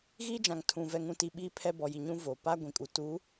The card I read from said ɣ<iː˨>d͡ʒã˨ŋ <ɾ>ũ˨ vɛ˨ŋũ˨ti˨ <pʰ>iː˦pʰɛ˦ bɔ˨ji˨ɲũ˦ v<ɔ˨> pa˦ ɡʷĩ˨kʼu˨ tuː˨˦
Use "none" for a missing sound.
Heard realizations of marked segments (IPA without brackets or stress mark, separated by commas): iː˦, tʰ, ɓ, o˨